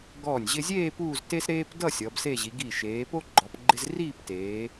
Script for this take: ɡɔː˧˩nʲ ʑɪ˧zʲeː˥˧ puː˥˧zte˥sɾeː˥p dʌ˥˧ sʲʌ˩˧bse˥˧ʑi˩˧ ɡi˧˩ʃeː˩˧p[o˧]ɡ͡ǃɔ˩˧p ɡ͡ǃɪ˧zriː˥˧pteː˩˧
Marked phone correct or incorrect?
incorrect